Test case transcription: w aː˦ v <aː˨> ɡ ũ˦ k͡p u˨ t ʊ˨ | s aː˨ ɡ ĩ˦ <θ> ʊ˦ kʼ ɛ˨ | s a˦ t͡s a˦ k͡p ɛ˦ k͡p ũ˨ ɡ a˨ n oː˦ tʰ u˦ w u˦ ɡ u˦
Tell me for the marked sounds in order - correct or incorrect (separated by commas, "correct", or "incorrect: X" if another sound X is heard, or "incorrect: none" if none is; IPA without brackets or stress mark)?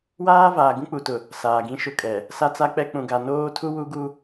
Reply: correct, incorrect: ʃ